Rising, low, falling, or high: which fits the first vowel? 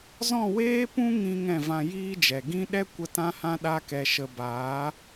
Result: falling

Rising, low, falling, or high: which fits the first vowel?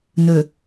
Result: low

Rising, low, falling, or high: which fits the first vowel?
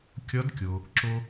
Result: rising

